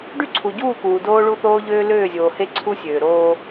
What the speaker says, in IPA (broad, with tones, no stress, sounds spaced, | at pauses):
ɖ y˦ ǀʰ u˨ ɟ uː˦˨ k uː˨ d oː˦ ɭ u˦ θ oː˦ ʎ øː˦ l øː˦˨ zʲ oː˨ h e˦ ǀʰ u˦ sʲ øː˨ ɾ oː˦